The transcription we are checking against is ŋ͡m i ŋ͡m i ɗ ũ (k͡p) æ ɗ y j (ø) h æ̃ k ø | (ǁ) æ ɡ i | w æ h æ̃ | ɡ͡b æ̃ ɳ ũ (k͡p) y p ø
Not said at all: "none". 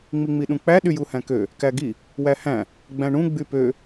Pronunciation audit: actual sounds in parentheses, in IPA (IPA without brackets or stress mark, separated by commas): k͡p, u, k, ɡ͡b